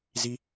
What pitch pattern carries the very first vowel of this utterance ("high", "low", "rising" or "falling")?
high